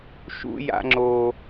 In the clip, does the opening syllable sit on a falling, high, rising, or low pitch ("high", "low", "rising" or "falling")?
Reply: high